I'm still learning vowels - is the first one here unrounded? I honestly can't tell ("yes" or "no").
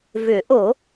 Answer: no